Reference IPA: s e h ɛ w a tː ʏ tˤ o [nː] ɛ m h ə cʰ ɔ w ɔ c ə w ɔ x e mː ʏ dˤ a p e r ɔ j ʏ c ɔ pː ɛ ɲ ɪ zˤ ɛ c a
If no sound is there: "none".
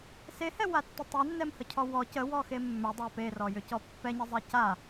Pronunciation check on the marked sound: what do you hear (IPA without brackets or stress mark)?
nː